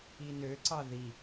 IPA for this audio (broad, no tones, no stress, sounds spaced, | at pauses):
i n ø ǀ ɑ ð i